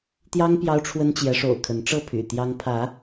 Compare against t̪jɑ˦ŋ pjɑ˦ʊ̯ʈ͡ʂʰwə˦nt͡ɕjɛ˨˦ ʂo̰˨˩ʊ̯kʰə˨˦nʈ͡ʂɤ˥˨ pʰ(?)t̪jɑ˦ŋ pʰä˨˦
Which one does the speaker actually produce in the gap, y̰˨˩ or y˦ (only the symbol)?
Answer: y̰˨˩